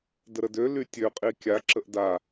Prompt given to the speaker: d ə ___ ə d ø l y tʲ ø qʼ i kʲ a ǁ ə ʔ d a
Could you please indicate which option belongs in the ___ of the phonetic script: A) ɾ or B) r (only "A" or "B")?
A